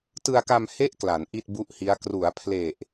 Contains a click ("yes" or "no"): no